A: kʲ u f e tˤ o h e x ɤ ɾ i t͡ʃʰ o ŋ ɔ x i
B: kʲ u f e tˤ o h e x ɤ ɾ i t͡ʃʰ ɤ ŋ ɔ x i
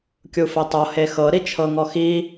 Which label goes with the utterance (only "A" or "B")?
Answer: B